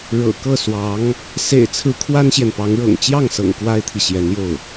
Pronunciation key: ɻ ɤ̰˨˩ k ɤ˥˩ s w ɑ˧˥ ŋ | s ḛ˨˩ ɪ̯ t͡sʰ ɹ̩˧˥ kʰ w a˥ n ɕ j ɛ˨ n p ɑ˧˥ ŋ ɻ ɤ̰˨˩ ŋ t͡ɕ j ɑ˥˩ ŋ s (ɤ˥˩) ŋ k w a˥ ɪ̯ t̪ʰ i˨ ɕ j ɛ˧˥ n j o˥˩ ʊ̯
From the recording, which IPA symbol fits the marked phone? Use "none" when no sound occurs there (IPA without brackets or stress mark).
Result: ɤ̰˨˩